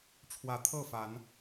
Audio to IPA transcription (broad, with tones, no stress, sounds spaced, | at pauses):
ʈ͡ʂʰ w ä˨˦ t̪ʰ ɤ˥˨ f a˨˦ n